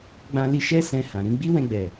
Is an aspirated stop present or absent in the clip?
absent